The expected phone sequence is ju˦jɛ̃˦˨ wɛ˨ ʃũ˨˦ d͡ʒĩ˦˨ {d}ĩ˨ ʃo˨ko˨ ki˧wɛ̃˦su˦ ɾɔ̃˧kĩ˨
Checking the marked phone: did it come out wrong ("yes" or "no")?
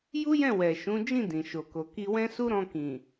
no